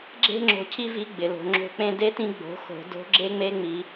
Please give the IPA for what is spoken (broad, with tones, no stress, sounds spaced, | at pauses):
ɡ͡ǁ e̤˥ ŋ͡ǁ o̤˧ cʰ i˥ v i˧˥ ɡ͡b ɪ˩ l o̤˩˧ ŋ͡ǁ o̤˧ k͡p ẽ˧ d e˧˥ t ĩ˧ ɡ͡b o̤˩˧ x o̤˩˧ d o̤˧˥ ɡ͡ǁ e˥ ŋ͡m e˧˥ ŋ͡m i˩˧